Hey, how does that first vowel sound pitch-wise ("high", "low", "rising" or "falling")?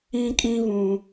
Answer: high